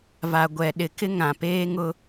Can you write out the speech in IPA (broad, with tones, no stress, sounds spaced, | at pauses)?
v a˨ ɡʷ ɛ˨ ɗ ɪ˨ k ɪ˦ ŋ ã˨ p eː˦ ŋ ʊ˦